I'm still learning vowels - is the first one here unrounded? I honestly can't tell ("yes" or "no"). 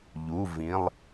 no